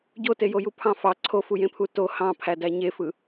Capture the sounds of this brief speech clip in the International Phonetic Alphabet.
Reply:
ɟ o t e j o j u pʰ ɑ̃ f ɑ ǀʰ o f u j ẽ pʰ u t o h ɑ̃ pʰ æ d æ ɲ e f ɯ

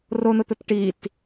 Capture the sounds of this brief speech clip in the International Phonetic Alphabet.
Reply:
r o n̪ ʊ t̪ ʊ t ʈ i t

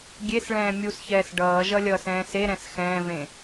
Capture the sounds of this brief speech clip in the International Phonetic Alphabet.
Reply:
ɡʲ e s ɭ ɛ̃ː mʲ u s ç ɛː s ɖ ʌː ʒ ʌ lʲ ʌː s ɛ̃ː s e ɾ ɛ̃ s x ɛ̃ː v ẽ

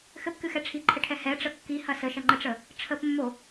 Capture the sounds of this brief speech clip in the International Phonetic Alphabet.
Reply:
x ɘ p k ɨ x ɛ ʈ͡ʂʰ i ǃʰ ɘ ʈʰ ɛ h ɛ ʈ͡ʂ ə kː i h ɐ s ə ʃ ɐ ŋ͡ǃ ə ʈ͡ʂ ə | ʈ͡ʂʰ ə p mː o

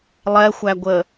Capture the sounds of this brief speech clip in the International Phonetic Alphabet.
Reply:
lˠ ɛ xʷ æ ɡʷ ə

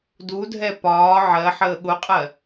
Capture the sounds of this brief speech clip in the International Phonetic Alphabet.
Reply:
d u dʱ ɛ p ɒː ʕ ɜ ħ əː ɠ ʊ qʼ ɜ

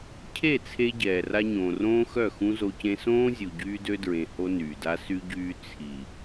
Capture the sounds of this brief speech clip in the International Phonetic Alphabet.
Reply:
cʰ e˦˨ t͡sʰ e˦ ɟ ɛː˨ r a˦ ɲ õː˨ r õː˦ x œ˦˨ x ũ˦ z o˦ c ẽ˦ s õː˦ zʲ u˨ ɟ yː˦ d ø˦ d ɹ ẽ˨ h o˦ n yː˨ d a˦ s y˦ ɟ yː˦ t͡sʰ i˨

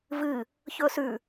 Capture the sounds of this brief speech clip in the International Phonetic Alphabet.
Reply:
v ɨ | ç ɵ s ʉ

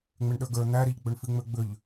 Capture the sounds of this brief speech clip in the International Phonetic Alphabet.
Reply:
ŋ͡m e ɳ ɗ ə˞ ɡ ə˞ n̪ æ ɾ i ʎ ɡ͡b ø ɳ f i ŋ͡m ø ɡ͡b ʏ ʎ

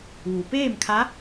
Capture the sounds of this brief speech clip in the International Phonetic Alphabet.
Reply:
ʋ u˩ p eː˥˨ m kʰ a˧˥

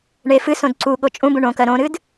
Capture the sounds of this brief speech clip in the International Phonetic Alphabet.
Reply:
ɳ e f ɨ s õ d ǀ u ɠ o t͡ʃʼ ũ b ũ ɳ õ k ɜ ɾ õ ɾ ɨ d

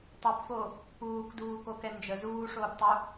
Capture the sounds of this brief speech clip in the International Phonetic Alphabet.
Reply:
tˤ u p f o | p uː k d uː k o k ɛ n d͡ʒ ə z uː ʂ oː p tˤ u

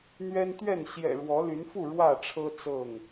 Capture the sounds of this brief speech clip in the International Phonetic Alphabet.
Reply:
n̪ ɥ ɛ˦ n t̪ ɥ ɛ˥˨ n ɕ j ɛ̰˨˩ ɻ w ɔ˨˦ l y˨˦ n f u˥˨ ɻ w ä˥˨ ʈ͡ʂʰ ɤ˦ t͡s ɤ˥˨ ŋ

